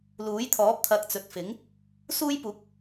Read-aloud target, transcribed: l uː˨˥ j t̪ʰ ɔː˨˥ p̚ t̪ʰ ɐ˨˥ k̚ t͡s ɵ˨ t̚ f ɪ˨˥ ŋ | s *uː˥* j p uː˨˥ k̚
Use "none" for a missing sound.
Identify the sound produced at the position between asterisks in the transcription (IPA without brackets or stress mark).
uː˥